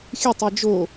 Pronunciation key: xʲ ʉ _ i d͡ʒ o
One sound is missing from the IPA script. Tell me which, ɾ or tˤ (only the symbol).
tˤ